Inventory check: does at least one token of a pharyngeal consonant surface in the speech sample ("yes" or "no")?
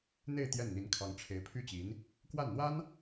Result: no